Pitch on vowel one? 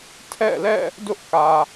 falling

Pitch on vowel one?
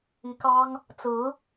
rising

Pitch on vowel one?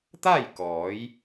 falling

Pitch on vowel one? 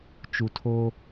low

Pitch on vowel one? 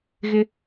high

